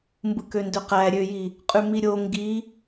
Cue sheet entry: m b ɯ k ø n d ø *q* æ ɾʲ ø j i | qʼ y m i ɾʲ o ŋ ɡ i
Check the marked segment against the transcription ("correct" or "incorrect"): correct